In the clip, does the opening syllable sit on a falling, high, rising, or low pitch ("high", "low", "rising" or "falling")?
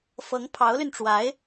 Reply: rising